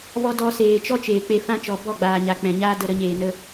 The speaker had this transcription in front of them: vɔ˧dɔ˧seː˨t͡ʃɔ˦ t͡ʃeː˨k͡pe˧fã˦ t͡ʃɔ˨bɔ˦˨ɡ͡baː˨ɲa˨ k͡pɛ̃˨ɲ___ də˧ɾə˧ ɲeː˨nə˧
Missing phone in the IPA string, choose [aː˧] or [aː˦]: aː˦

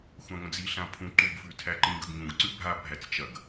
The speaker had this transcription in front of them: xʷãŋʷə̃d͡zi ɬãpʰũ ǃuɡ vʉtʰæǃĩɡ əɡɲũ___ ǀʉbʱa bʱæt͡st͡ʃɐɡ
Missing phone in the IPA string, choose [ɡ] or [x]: ɡ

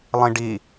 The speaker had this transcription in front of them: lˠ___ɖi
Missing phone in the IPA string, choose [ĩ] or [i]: ĩ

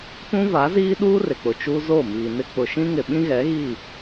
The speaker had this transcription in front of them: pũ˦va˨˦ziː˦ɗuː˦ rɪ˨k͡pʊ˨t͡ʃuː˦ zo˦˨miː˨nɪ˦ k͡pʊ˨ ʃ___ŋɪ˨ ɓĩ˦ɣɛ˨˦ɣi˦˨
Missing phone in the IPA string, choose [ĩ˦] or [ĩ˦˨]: ĩ˦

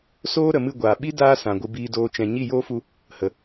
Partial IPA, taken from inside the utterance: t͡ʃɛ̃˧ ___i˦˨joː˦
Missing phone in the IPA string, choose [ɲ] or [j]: ɲ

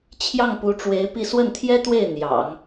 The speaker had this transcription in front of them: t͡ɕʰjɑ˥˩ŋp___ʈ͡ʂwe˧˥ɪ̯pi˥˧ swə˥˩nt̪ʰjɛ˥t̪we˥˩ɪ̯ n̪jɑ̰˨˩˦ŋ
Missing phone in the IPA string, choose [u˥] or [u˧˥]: u˧˥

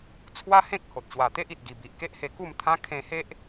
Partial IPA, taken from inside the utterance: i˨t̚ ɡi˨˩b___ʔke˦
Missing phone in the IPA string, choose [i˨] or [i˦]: i˨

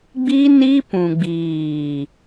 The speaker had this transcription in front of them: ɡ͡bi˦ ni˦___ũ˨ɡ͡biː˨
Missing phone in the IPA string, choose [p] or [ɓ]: p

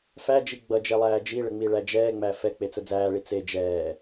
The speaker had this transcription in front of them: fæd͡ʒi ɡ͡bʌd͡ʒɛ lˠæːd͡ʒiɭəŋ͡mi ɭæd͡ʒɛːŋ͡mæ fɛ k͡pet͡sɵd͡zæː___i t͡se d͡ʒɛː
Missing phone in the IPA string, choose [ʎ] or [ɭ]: ɭ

